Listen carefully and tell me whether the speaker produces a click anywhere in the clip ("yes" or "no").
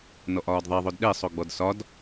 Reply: no